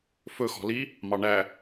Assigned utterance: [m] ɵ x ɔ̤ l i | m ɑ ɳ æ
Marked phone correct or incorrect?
incorrect